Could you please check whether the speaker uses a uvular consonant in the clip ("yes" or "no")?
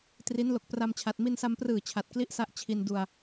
no